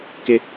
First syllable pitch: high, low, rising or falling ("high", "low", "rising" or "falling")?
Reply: high